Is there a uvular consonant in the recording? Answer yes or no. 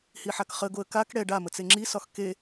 yes